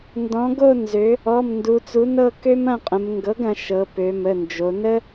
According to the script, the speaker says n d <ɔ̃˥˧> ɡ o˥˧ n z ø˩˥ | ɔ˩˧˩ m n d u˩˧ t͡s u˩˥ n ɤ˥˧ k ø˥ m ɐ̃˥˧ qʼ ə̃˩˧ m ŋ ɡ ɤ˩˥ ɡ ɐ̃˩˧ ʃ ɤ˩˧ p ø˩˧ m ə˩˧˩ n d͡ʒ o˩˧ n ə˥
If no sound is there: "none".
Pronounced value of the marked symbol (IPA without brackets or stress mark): ɔ̃˩˥